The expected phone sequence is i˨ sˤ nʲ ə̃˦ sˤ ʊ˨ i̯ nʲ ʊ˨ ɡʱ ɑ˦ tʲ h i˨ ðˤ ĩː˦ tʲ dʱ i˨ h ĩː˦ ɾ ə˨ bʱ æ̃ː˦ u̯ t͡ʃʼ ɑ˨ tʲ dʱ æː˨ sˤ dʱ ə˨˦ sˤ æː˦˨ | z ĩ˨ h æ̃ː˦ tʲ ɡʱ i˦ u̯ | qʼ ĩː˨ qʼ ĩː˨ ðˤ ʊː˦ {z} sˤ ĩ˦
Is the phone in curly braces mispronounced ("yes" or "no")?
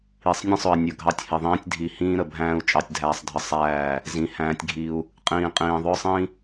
yes